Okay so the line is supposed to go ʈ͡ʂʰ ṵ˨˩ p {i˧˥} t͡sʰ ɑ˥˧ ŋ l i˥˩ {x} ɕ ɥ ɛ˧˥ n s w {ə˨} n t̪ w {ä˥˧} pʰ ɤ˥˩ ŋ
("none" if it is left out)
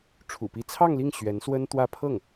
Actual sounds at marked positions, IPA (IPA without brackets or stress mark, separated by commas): i˧˥, ŋ, ə˥, ä˥˧